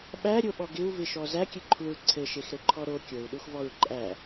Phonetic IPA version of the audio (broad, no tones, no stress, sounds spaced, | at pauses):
ɓ æ ɾʲ o ɓ ɔ ɡ ɪ u̯ v ɪ ʃ ɔ z æ kʲ ɘ ǃʰ u ɹ ǀʰ ɘ ʃ e x ɾ ɘ ǃʰ ɔ ɾ o kʲ o u̯ ɗ u x v ɔ ɹ ǃʼ æ